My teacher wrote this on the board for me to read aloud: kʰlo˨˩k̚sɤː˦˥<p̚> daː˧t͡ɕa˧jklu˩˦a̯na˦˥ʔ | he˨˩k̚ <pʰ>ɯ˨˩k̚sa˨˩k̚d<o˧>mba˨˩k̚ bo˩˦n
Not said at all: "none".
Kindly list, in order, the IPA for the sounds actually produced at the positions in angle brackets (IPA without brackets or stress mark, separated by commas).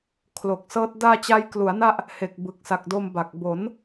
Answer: t̚, b, o˧